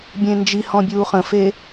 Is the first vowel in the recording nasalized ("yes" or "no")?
yes